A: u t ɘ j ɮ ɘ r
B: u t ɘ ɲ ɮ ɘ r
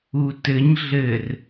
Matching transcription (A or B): B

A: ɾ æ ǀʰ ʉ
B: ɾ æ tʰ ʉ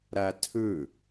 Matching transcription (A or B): B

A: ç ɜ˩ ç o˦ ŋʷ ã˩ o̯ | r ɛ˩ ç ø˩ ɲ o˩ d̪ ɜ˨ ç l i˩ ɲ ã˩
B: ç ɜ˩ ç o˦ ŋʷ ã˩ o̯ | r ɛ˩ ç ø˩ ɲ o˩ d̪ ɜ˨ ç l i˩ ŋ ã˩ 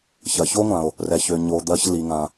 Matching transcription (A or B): B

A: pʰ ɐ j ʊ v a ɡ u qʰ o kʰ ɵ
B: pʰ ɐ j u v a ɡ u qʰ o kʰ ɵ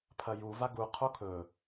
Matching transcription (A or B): B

